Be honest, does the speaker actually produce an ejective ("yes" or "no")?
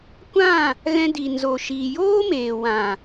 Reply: no